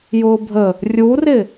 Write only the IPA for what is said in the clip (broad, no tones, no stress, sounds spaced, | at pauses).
j ʊː bʱ ə | rʲ u r ɪ